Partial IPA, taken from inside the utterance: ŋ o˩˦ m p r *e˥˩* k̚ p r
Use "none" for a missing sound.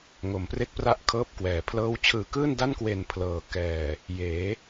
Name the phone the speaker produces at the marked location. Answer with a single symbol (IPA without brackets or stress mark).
e˥˩